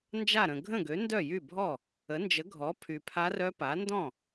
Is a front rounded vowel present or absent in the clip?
present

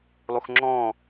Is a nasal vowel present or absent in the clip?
present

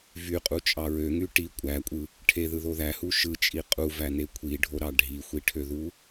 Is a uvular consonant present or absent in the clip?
present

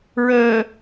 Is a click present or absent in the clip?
absent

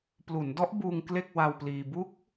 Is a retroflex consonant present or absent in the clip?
absent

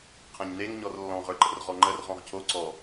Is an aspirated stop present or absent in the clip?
present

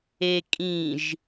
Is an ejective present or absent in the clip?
present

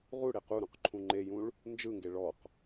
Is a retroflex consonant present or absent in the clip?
present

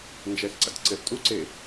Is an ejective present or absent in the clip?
present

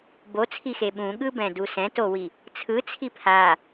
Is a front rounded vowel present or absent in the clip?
absent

